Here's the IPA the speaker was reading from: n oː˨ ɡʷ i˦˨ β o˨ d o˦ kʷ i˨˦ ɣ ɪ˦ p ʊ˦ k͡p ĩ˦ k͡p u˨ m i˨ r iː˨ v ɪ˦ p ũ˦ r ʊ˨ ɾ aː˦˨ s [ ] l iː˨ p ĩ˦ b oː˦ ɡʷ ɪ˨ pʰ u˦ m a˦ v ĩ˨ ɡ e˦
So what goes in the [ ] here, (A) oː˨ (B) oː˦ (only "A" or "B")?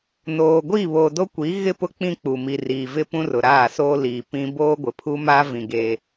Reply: B